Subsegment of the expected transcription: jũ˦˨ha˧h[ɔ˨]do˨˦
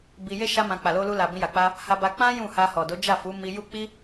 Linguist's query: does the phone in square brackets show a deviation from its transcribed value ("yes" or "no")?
no